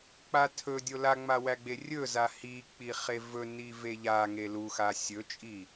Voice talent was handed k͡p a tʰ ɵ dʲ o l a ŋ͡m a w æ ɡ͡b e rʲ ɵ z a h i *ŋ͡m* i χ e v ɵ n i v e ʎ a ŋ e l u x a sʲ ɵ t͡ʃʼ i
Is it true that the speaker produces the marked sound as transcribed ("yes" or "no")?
no